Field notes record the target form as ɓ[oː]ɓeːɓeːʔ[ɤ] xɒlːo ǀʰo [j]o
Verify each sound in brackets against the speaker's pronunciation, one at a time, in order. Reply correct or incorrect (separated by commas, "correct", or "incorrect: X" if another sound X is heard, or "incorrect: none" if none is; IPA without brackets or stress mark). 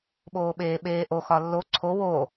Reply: correct, incorrect: o, incorrect: w